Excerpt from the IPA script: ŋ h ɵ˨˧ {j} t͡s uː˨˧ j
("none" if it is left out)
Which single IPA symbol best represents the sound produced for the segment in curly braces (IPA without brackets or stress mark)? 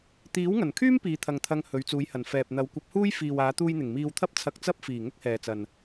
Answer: ɥ